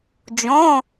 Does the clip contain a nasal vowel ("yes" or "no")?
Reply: yes